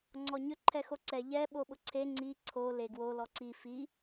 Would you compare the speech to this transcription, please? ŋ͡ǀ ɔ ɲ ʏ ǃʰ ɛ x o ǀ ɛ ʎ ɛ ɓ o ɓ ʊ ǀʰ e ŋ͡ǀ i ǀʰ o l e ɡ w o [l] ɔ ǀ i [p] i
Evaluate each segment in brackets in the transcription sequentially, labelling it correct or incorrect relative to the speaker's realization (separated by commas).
correct, incorrect